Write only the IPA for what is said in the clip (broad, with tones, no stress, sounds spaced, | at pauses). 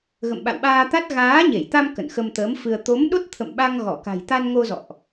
ɣ ə̰˧˨ m ɓ a̰˧˨ w ɓ aː˧ t̪ a˦˥ t̚ ɣ aː˨˦ ɲ e˧˩ j t̪ a˧ m k ə̰˧˨ n x ə˧ m t̪ əː˨˦ m f ɨ˧ ə̯ t̪ o˨˦ m ɗ o˦˥ t̚ t̪ʰ ə̰˧˨ m ɓ a˧ ŋ ɣ ɔ˧˩ k a̤˨˩ j t̪ a˧ n ŋ o˧ z ɔ̰˧˨ ʔ